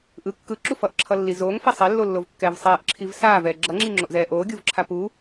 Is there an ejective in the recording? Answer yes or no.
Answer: no